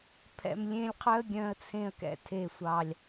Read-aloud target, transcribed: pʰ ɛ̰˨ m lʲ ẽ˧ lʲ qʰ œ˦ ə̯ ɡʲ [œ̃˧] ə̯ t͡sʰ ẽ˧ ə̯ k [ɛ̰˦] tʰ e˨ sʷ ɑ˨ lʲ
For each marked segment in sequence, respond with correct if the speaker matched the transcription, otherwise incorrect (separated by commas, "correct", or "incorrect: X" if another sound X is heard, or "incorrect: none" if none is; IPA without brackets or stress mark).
correct, incorrect: ɛ̰˨